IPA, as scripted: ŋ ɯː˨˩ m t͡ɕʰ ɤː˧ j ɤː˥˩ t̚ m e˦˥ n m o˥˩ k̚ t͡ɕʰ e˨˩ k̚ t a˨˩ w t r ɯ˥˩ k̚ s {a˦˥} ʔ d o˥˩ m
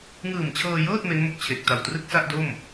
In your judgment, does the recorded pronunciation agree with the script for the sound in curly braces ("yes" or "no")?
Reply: no